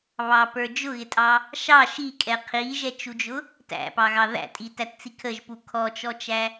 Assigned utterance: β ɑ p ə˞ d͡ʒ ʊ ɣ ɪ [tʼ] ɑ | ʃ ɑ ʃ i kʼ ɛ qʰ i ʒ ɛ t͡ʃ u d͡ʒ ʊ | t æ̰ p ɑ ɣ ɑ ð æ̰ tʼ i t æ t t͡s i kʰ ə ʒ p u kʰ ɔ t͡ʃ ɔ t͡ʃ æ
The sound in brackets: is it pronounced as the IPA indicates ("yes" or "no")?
yes